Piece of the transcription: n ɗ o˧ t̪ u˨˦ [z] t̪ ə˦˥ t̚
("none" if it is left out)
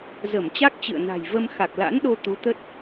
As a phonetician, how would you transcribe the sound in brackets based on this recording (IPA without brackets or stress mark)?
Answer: none